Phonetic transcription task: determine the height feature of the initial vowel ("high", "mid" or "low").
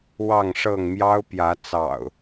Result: low